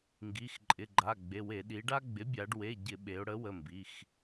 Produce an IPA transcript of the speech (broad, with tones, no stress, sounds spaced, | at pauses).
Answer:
ŋ ɡ i˩˧˩ x ǃʼ ɪ˩˧˩ ɡ͡ǃ a˩˧˩ ɡ͡b e˩˧˩ w e˧˩˧ ɗ i˩˧ ɖ a˦ ɡ͡b ɪ˩˥ bʲ a˩˧ ɖ w e˩˧˩ ɟ ɪ˧˩˧ ɓ e˩˧ ʊ̯ ɽ ə˩˥ w ə˩˧˩ m b i˩˧˩ x